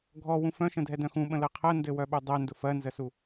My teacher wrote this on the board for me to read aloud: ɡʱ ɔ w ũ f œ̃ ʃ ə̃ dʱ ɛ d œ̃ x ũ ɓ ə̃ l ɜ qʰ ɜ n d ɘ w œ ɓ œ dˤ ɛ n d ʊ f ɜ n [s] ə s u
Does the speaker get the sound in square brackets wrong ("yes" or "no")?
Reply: yes